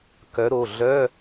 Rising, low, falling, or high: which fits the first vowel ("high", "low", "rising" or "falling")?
rising